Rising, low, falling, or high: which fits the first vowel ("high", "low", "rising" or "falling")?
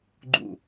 falling